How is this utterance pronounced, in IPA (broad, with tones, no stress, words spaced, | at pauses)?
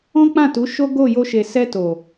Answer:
ɔ̃˦k͡pã˦˨tu˨˦ ʃo˦ɡo˦˨jo˧ʃe˨ sɛ˧to˨